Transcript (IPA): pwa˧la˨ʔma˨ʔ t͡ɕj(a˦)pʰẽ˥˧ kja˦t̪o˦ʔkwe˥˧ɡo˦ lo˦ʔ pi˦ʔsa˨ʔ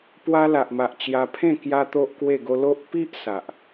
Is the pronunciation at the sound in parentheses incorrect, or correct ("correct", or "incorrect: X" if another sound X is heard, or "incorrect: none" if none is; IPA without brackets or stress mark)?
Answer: incorrect: a˧